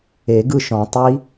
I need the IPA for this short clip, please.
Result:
e˨˩˦ ɡ ɯ˥˨ ʃ ɔ̃˨˩˦ tˤ i˦˥

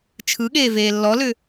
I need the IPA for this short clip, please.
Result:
t͡ʃʰ ɯ ɠ eː v eː lː ɔ l ʏ

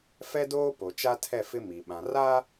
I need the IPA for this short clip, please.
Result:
f ɛ˦ d oː˦ p o˨ t͡ʃ a˦ tʰ ɛ˦˨ f ɪ˦ m i˨ ɓ ã˨ r a˦

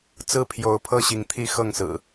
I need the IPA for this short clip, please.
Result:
t͡s ɹ̩˥˨ pʰ j o˨˦ ʊ̯ pʰ ɤ˥˨ ɕ i˨˦ ŋ t̪ʰ i˦ x ɤ˥˨ ŋ s ɹ̩˨˩

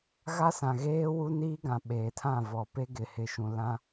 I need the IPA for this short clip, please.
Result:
ɣ a˦ s ã˨ ɣ eː˦ w u˦ n iː˦ ɡ ã˨ ɓ eː˨ tʰ ã˦˨ v ɔ˨ p e˦ ɡ ɪ˨ h ɪ˨ ʃ ũ˨ l ã˦

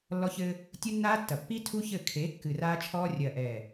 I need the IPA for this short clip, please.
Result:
lː ɔ˦ ç ɘː˦ | tʲ u˦ nː aː˦ tː ɐ˨ pː i˦ tʰ u˦ ç ɘ˦˨ kʰ e˨˦ kː ɨ˨ r aː˦ t͡ʃʰ ɔː˦ rʲ ɐː˨ ʔ ɛː˨

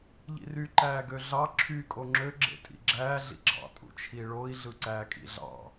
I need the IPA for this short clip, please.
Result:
ʎ ḭ r y ǃ æː ɡ ø ɮ ɑ ǁʰ y kʼ o ŋ͡ǁ ø ɡ͡ǁ ḛ tʼ ḭ ɡ͡ǁ æː ɮ ḭ ɡ͡ǁ ɑ̰ tʼ ṵ t͡ʃʰ i ɭ o i̯ ɮ ɯ ǀ æː kʼ ḭ ɮ ɑ̰

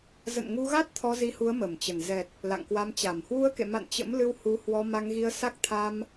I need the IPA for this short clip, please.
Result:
z ə̰˧˨ n ŋ u˧ ɣ a˦˥ t̚ t̪ʰ ɔ˧ z i˧ h u˨˦ ə̯ m ə˧˩ m t͡ɕ ə˧˩ n z ɛ˨˩ t̚ | l a̰˧˨ ŋ k w a˧ m t͡ɕ a˧˩ m h w u˧ ə̯ k ḛ˧˨ m a̰˧˨ n t͡ɕ ə̰˧˥ m l ɨ˧ w h u˨˦ h w ɔ˧ m a˧ ŋ ɣ i˧ ə̯ s a˦˥ k̚ t̪ʰ a˧ m

